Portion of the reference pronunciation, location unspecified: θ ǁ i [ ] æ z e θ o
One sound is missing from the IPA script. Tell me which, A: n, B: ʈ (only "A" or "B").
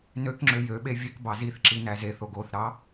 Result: A